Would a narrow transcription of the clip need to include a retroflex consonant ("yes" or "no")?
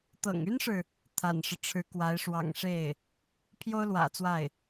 yes